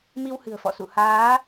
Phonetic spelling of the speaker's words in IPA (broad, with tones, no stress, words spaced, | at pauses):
mi˧whɨ̤˨˩ə̯fɔ̰˧˨sṵ˧˨ haː˨˦